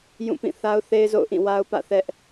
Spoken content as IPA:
jũ˦˨pĩ˦˨ θa˦ʊ̯θe˦ɪ̯zo̰˦˨ʊ̯ʔĩ˦˨ wa˦ʊ̯pä̰˦˨θɛ˦ʔ

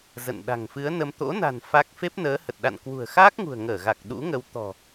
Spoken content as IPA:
zə̰˧˨n ɗa̤˨˩ŋfɨ˨˦ə̯nə˧m t̪o̰˧˥na̤˨˩n fa˦˥k̚ fe˦˥p̚nəː˨˦hə˨˩t̚ ɗa̰˧˨nkwṳ˨˩ə̯xaː˦˥k̚ŋṳ˨˩ə̯ ŋəː˧˩ɣa˨˩k̚ ɗṵ˧˥ŋə˨˦w t̪ɔ̤˨˩

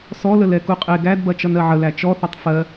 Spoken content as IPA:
sɔlə lɛkuqʼe ɡædbɐ t͡ʃʌnɜʕəlæ t͡ʃɔθɐtˤ fɜ

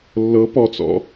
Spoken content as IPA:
lːɤ pɔt͡sɔ̰

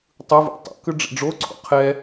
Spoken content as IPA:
tˤɯvṵ tˤa̰kɯ ɖ͡ʐḭɖ͡ʐoǀʰo̰ qʰɛ

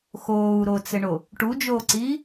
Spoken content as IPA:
xoːu̯ɾot͡sɘɳo | ʈud͡ʒoːǀiː

